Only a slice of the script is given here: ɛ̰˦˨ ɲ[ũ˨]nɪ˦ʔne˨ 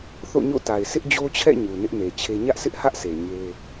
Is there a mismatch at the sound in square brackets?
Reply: yes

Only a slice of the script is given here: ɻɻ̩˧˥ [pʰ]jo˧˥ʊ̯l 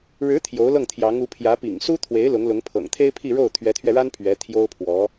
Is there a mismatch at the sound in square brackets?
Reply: yes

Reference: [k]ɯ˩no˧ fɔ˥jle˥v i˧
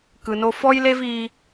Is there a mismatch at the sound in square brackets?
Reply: no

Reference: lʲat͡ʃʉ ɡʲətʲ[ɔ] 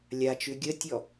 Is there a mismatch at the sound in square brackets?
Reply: no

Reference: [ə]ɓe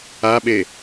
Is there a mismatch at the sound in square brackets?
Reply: yes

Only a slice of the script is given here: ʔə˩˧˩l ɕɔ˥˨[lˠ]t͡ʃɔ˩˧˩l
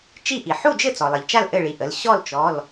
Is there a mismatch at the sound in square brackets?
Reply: yes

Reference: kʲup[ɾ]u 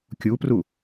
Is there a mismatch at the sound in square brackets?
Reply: yes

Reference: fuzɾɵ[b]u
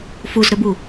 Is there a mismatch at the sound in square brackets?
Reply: no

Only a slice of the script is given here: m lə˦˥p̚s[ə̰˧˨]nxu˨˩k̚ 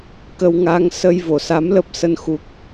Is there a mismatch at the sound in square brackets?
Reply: yes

